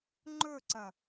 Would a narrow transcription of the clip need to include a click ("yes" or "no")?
yes